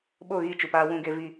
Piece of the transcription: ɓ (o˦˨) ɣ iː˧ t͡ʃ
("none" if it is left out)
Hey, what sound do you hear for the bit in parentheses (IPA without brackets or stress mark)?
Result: o˦˨